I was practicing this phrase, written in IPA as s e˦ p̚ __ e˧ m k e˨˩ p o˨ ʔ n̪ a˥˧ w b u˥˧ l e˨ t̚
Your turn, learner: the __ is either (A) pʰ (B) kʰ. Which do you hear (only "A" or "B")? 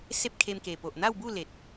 B